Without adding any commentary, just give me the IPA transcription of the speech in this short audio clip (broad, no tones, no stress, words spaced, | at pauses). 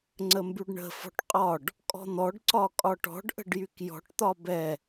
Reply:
ŋ͡ǀəmbyɖɳə̤ fɔ̤ʈqʼɒɖ | kʼɔ̤n̪ɔɖ ǀɒkʼɒʈɔ̤ɖ ʔə̤ɖjykjɔ̤ʈ t̪ɒbɛ